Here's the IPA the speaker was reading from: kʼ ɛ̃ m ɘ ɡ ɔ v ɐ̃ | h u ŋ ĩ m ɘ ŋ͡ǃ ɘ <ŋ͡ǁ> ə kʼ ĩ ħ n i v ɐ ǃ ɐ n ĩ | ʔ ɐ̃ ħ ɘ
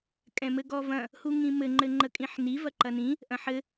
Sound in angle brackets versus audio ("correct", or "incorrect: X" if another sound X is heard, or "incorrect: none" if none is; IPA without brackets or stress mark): incorrect: ŋ͡ǃ